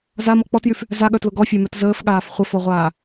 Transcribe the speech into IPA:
zamɔ k͡pɔtjyf | zaɠœtlʊ ɡɔfʲæmœt zəːfɠaːf χʷəfɔʁʷaː

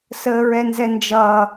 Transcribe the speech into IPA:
səːɹɛnzɛnd͡ʒʌː

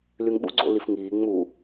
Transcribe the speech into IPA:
lyŋɓṵɡ͡ǀo̰ lifŋiː ŋ͡mu

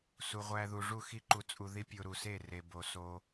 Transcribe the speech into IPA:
su˨ʁʷæ˧ðu˨ ʐu˦˨xi˦ǃu˧t͡sʼu˧ ði˦pʲo˧ɾu˨se˦˨ re˨bo˨ so˧

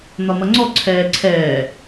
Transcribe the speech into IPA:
n̪ɒmʌŋ͡ǀɔ ǀʰɛːǀʰɛː

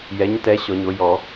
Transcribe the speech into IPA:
jɛ˩˥ɲtɛ˩˥ ɕɔ˨˩˦ɲo˩˥ jɔ˨˩˦

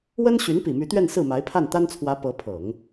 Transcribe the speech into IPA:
wə˥nɕy˧˥n pi˨˩my˧˥t̪ɥɛ˥˧n sɹ̩˥˩ma˧˥ɪ̯ pʰa˥˩nt̪a˥nt͡sʰwä˧˥ pɤ˧˥pʰɤ˨˩˦ŋ

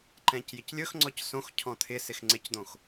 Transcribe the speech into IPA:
ǃɛ̃cjɪclʲɵxŋ͡ǀɔc sõxcʰɔ̃ t̪ʰɪsɪx ŋ͡ǀɪcd̪õx

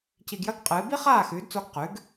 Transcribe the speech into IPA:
ci˧ɡjɐ˥ɡqʼɨː˩˥ bi˥χaː˥˩xʉː˩˥dt͡so˧ɡ qʉ˩˥ɡ

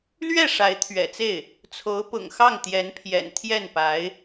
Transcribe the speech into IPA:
lɥɛ˥˩ ʂa˧˥ɪ̯t̪ʰɥɛ̰˨˩t͡se˥˩ɪ̯ | t͡sʰo˧˥ʊ̯pʊ̰˨˩ŋxɑ˥˩ŋ t̪jɛ˧˥npʰjɛ̰˨˩n t̪ʰjɛ˥˩npa˧˥ɪ̯

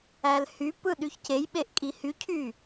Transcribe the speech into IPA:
ælhypɯ ɗyçcejɓeʔ kʼihycʰy

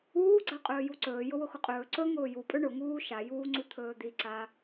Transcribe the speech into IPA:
uːɡ͡ǀa qʼɵːjuǀɵː jʊwʊxʊqʼɵː ǀɵ ŋʊːjupʼɵ ɳʊ ŋuːʃa juːŋ͡ǀut̪ʰɵːd̪i ǀa

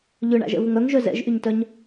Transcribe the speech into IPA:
ʎʏɳa̰ʒɛ̰ vʊŋœŋʒœ zɛ̰ʒʔyɲtœɲ

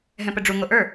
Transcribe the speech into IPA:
ɦɛ̃pəɖ͡ʐu ŋoʔə˞

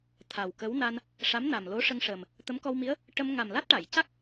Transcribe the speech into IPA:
t̪ʰa˨˩w kə˧˥wna˧n | ʂa˧˥mna˨˩mlo˧˥ ʂə˧ŋʂəː˨˩m | t̪ə˧˥mkɔ˧wmi˧˥ə̯ | ʈə˧m ŋa˨˩mla˦˥t̚ʈa˨˩˨jca˦˥k̚

